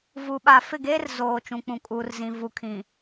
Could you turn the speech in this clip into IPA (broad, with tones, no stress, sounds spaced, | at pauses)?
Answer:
v u˨ ɓ aː˨ f ɪ˦˨ ɡ eː˦ r z oː˨ t͡ʃ ũ˨ k͡p ũ˨ kʼ uː˨ r z ĩ˨ v u˨ kʰ ĩ˨